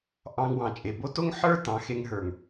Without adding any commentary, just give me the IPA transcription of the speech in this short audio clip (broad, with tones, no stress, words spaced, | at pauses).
ʔɑ̃˧ŋ wɑ̃˨t͡ʃʼe˨bo˦ to˦ŋħə˞˦ tɑ̃˨˦xe˧ŋ ɦə˞˨ŋ